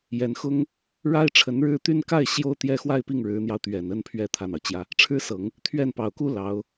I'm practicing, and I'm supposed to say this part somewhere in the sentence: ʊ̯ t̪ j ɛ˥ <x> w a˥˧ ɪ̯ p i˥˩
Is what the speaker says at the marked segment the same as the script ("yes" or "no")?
yes